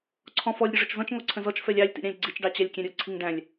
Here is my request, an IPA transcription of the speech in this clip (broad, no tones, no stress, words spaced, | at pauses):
ǀʰɔ̃fɔlʲ ɾʲʊʐʊt͡ʃzɔ̃t͡ʃ ŋɔǀʰə̃zɔt͡ʃ fɛlʲɑlʲ tḭɾʲɑ̃lʲɡ͡ǀit͡ʃ ɖɑt͡ɕælʲkʲɛ̃ɾʲʊ ǀʰiŋɖæ̃lʲ